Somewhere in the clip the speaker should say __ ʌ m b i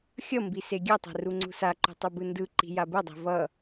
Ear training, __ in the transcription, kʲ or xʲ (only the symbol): xʲ